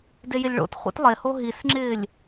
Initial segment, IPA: d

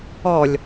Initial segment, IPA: ɔ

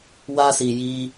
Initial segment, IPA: w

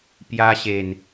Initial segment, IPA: p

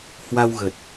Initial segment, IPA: h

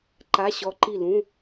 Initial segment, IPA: ǃ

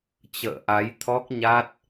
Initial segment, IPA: t͡ɕ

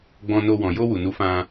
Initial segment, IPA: ɡ͡b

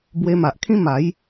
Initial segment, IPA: b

